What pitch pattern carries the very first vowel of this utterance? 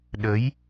rising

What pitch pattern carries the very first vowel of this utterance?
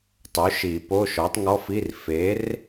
rising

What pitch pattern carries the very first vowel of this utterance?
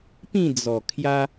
falling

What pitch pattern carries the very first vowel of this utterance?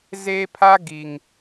high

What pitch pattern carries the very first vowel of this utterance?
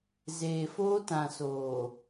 low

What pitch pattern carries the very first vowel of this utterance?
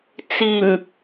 low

